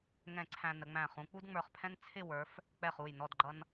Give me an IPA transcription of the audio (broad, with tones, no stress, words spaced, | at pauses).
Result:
ŋɛ̃˧˩ ǀʰæ̃˧nə˩˧ŋ͡mæ̃˧˩ χũ˩˧k͡pu˥dŋ͡mə˞˧˩χpʰɛ̃˥n t͡sʰɪ˥˧wə˞˩˧f | k͡pɛ˧˩χu˧˩jnɔ˧˩d ɡ͡ǃʌ˧n